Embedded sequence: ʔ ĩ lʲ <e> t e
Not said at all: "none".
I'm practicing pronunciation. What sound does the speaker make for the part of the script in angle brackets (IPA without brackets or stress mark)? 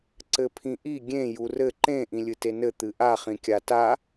ɨ